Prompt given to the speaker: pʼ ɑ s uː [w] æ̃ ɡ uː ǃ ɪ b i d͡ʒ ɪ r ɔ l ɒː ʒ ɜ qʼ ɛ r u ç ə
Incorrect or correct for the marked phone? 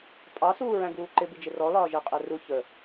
incorrect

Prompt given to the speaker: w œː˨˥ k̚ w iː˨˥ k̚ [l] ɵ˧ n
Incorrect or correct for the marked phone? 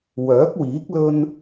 correct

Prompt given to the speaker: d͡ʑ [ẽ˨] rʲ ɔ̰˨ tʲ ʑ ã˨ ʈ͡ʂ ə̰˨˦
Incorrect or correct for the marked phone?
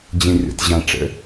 correct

